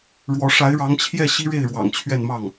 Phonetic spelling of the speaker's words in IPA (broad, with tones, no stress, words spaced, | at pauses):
ɻwɔ˧˥ ʂa˧˥ɪ̯ɻɑ˧˥ŋt͡ɕʰjɛ˥˩ ɕi˥ɻe˥˩ɪ̯ɻwɑ̰˨˩ŋ t͡ɕʰɥɛ˥˧nmɑ˥˩ŋ